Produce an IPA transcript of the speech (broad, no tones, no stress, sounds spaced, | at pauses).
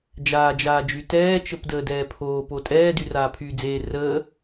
d͡ʒ aː d͡ʒ aː d͡ʒ y t ɛː t͡ʃ ə p d əː d ɛː pʰ oː p o tʼ ɛː d y r aː pʰ yː d͡z eː r əː